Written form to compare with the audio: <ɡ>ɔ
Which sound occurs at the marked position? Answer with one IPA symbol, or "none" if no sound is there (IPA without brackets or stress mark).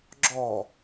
ɡ͡ǁ